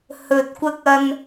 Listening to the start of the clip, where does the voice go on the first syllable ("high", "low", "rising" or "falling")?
low